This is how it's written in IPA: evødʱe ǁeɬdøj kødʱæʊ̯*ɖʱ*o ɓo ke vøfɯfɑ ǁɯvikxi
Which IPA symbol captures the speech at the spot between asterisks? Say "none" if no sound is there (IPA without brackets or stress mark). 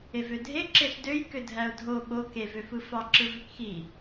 dʱ